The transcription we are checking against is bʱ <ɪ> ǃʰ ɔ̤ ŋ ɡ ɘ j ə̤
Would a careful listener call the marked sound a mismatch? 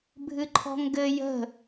yes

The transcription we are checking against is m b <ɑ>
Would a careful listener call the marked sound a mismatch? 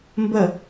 yes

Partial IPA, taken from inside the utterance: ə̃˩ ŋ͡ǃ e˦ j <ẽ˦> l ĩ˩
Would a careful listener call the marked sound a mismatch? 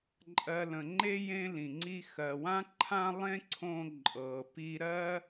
no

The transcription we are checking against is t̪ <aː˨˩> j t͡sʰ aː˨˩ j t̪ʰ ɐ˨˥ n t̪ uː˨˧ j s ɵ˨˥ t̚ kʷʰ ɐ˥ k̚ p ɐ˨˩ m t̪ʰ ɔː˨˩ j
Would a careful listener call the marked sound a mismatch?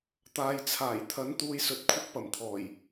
yes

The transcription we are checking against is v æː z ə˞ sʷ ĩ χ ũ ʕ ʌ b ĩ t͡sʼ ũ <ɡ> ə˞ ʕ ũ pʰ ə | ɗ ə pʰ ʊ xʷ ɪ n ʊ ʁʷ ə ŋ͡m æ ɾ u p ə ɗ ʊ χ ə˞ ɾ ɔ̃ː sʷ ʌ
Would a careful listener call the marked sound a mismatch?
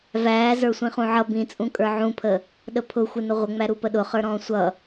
yes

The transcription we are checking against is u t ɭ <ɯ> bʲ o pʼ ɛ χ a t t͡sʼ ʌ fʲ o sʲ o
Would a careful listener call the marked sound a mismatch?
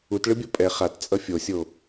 no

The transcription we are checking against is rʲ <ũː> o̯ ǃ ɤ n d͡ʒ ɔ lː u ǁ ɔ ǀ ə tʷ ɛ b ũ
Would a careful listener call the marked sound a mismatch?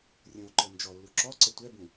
yes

